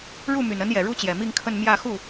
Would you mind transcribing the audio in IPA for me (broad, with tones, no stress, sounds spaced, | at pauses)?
ɻ u˥˩ m y˨˩ n ə˧˥ n j ɛ˨˩ ɻ u˥ t͡ɕ j ɛ˨˩ m i˥˧ ŋ kʰ ə˥˧ n m j ä˥˧ x u˥˩